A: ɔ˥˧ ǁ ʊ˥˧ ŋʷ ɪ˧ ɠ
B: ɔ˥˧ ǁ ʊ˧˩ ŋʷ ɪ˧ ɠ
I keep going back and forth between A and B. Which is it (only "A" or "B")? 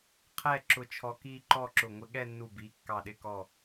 B